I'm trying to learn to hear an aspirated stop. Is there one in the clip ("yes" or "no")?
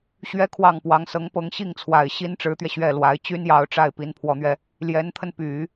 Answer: yes